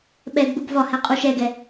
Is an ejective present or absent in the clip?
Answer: present